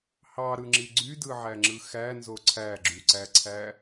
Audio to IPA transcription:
h ɑ ɾ ɯ ŋ͡ǁ i ɡ͡ǀ y d ɯ ʕ æ ŋ͡ǁ ɯ x æ n z o ǀʰ æ ɡ͡ǁ y ǀ æ ǀʰ æ

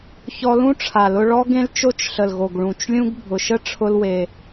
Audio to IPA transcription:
ç ɔ˧ l ũ˦ ʈ͡ʂʰ a˨ l ʊ˧ ɭ ɔ˦ ɡ ẽ˦ l t͡ʃ o˦ t͡ʃ ɬ ə˨ l ɣ o˨ ɡ ɭ ũ˨ t͡ʃ lʲ ũ˦ ɡ bʱ ʊ˨ ʃ ə˦ ʈ͡ʂʰ ʊ˦ l w e˧

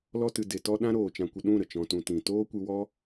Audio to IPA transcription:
l ɔ˧ t ɨ˨ d e˨ t ɔ˧ ɗ ã˦ ɾ oː˨ t͡ʃ ã˧ kʷ ə˧ ɗ ũ˦˨ ɾ ə˨ t͡ʃ ɔ̃˧ t ũ˧ t ĩ˨ t oː˦ kʷ ɨ˧ w ɔ˦

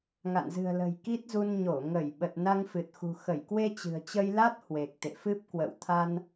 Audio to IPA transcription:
ŋ a̰˧˨ n z ɨ̤˨˩ ə̯ l ə̤˨˩ j k i˦˥ t̚ z u˧ n ɲ o˧˩ ŋ ə˧˩ j ɓ ə˨˩ t̚ n a˧ ŋ f ɨ˨˩ t̚ x ṳ˨˩ x ə˧˩ j k w e˧ t͡ɕ ɨ̤˨˩ ə̯ t͡ɕ ə˧ j l a˦˥ t̚ h w e˨˩ k̚ t̪ ḛ˧˨ f ɨ˦˥ p̚ k w ə̰˧˨ w t̪ʰ a˧ n

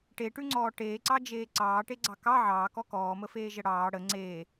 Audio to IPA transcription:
ʈ e ʈ ʉ ŋ͡ǀ ɔː ʈ eː ǀ ɑ d͡ʒ eː ǀ ɑː ʈ e ɡ͡ǀ ɑ k ɑ ʕ ɑː k ɔ k ɔː m ə f eː ʒ ə ɽ ɑː ɽ ə ŋ͡ǀ eː

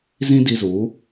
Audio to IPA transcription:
z ĩ˦ d i˧ z u˨˦

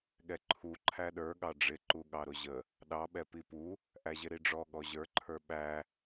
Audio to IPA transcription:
ɠ ɛ ǃʰ u ǃʰ æ ɗ ə˞ ɠ ɑ ɖ͡ʐ ɪ ǃ u ɠ ɑ ɾ ʊ ʑ ə | ɗ ɑ ɓ ɛ p i p u | ʔ æ ʑ ɪ ɾ i ɖ͡ʐ ɔ ɠ ɔ ʑ ə˞ ǃʰ ə˞ ɓ æ

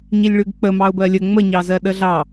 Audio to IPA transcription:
ɲ i lʲ ɭ ʉ ɡ k͡p ə m ɑ ʊ̯ b ɜ lʲ ə ŋ͡m ə ɲ ɑ z ɜ ɗ ə ɮ ɑ

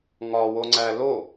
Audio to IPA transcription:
ŋ ɒ w o ŋ͡ǀ æ l o

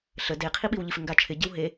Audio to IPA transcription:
ɬ ə d e qʰ i ɓ i w ʎ i f ɪ ŋ ɡ a t͡ʃʰ ɪ ɟ ɪ w ɦ e

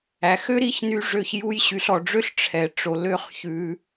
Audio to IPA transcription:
æ˩ x ø˥ ɾ i˥ ç n y˧ ʐ ø˧ ç j u˧ j ɕ y˩ ɬ ɔ˩ ɖ͡ʐ ø˥ ɬ ʈ͡ʂʰ ɛ˩ ʈ͡ʂ o˩ l ø˧ χ ç ʉ˩

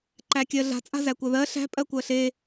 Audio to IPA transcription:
ǃ æ kʲ ɜ ɮ a̤ t͡sʼ a̤ z æ kʷ ɜ ð ɜ ɬ æ̤ pʼ ɜ kʷ ɜ ɬ e

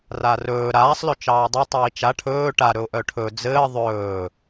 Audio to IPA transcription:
r a r ɵː ɾ aː sˤ l ɵ t͡ʃ ɑː dˤ ɘ tˤ iː t͡ʃ a ʈʰ ɵː ʈ a ɾ ɵ ʊ̯ ʔ œ ʈʰ ɵ d͡z ɘː ðˤ ɵː

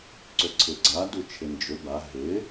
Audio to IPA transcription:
ǀ ʏ ǀʰ ɪ ɡ͡ǀ a d u t͡ʃʰ ɪ n d͡ʒ ʏ b a ɦ ɪ

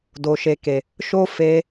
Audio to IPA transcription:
d o˨ ʃ e˨ k e˨ | ʃ o˦ f e˧

